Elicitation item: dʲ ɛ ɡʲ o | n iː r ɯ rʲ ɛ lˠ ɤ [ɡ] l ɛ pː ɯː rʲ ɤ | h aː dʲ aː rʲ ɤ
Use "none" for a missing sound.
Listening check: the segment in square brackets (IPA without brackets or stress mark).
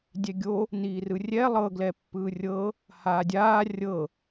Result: ɡ